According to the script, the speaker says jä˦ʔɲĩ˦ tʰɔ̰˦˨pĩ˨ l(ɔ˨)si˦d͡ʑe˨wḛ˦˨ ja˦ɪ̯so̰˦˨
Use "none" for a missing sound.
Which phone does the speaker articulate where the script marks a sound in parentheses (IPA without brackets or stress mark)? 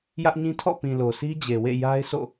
o˨